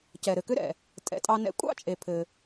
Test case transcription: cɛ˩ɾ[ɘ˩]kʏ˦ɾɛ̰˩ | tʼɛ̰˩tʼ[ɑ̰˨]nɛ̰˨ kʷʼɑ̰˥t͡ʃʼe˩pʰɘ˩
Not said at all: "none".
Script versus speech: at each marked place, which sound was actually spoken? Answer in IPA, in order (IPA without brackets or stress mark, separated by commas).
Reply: ɘ˩, ɑ˨